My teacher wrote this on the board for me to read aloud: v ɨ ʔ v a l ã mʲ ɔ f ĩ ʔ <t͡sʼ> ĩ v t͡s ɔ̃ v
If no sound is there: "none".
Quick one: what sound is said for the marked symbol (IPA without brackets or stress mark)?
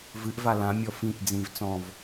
d͡z